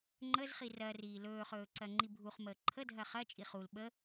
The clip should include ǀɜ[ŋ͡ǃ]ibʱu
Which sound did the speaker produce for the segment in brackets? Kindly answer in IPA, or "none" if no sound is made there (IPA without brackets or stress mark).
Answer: ŋ͡ǃ